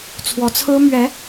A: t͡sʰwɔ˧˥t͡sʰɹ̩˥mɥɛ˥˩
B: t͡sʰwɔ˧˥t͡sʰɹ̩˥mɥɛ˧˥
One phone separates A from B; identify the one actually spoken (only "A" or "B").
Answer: B